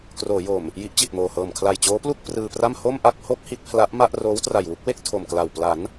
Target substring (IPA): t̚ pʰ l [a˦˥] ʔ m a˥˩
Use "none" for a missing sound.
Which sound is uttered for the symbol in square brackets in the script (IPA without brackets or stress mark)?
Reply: a˦˥